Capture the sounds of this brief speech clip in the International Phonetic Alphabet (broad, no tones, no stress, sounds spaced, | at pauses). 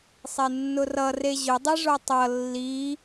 sˤ e nː ʊ r ʌ r e ʑ ʊ dˤ i ʐ o tˤ ʌ lː i